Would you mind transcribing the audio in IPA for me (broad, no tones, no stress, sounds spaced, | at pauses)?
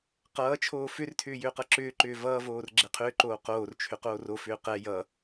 q ʌː t͡ʃʰ oː f ʏ r tʰ ʏː j ʏː q ʌ ǁ ʏː ǃ ʏː v ʌː v oː r ɡ͡ǁ ɛ qʰ ʏː ǃ oː q oː r t͡ʃʰ ʏ q oː r o f ʏː q ɛ j ʌ